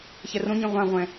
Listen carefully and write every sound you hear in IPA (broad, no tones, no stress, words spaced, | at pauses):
çɛrõɲĩ ʁʷãʁʷɛ̃